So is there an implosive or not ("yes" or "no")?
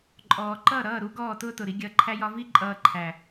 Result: no